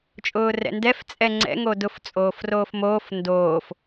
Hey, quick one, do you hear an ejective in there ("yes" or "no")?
yes